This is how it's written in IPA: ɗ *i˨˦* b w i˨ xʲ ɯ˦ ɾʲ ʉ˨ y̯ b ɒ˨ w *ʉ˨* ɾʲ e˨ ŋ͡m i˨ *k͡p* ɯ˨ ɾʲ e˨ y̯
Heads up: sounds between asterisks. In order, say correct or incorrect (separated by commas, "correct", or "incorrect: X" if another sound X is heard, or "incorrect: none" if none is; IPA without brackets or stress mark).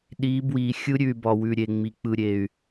correct, correct, correct